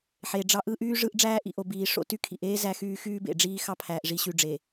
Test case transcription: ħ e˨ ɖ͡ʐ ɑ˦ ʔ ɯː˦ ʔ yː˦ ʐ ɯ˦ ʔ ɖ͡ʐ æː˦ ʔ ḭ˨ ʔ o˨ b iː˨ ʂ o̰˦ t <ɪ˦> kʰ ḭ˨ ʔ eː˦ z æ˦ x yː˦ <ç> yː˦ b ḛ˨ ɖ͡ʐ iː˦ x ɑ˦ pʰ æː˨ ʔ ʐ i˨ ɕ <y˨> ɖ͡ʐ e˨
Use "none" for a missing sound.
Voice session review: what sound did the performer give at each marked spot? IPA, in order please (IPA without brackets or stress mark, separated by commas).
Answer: y˦, x, y˨